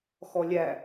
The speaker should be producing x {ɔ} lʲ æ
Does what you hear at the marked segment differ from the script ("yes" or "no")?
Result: no